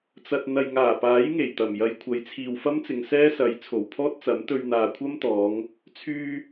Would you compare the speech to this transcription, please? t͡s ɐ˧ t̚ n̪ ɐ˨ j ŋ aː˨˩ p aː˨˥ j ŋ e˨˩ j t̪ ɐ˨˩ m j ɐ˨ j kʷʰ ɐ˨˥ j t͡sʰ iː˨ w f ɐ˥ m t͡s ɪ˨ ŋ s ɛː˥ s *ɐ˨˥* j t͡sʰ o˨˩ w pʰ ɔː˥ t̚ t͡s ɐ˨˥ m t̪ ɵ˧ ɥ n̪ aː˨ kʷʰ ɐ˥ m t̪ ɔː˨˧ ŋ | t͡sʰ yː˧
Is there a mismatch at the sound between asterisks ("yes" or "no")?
no